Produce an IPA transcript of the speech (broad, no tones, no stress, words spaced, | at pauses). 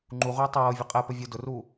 ŋ͡ǃuʁʷəː tˤɤːvʲə qʼɛpə vʲʊ dʊruː